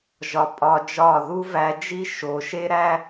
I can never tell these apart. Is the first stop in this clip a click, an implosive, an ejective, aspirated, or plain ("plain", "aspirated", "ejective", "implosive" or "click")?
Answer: ejective